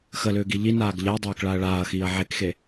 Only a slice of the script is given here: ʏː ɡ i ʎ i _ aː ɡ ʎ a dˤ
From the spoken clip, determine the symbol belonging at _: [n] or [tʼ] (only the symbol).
n